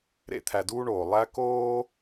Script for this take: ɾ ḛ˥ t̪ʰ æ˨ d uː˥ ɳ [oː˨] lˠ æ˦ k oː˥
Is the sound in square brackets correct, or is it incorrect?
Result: incorrect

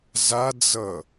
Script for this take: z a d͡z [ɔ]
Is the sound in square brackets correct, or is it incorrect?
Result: incorrect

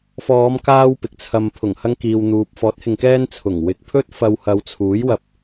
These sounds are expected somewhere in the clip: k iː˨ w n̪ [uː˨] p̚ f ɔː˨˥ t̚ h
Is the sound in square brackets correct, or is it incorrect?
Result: correct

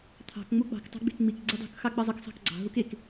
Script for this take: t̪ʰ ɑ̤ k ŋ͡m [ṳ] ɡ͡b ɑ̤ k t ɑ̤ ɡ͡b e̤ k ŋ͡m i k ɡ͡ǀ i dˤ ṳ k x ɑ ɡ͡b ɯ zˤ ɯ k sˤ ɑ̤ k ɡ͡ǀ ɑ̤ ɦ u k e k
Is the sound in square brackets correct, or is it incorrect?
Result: incorrect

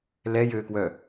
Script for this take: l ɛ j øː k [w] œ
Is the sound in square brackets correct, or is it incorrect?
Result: correct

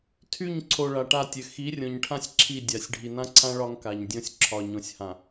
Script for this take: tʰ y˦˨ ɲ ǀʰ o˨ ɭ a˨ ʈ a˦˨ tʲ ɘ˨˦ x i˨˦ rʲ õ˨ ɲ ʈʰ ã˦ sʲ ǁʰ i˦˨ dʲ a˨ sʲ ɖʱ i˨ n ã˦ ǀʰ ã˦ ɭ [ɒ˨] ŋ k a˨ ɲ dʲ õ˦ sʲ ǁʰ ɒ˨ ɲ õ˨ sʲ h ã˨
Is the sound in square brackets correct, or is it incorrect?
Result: incorrect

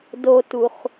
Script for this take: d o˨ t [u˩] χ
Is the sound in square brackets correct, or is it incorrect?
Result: correct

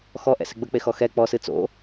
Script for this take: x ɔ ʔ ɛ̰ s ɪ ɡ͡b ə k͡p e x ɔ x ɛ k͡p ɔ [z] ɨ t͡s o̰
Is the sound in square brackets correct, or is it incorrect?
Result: incorrect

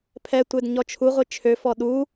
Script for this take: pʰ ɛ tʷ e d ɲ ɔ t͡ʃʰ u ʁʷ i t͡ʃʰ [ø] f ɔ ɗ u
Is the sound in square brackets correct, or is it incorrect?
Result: correct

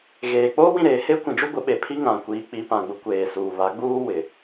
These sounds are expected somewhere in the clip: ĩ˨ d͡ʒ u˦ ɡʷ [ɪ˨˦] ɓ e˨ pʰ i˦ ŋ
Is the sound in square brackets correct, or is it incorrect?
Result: correct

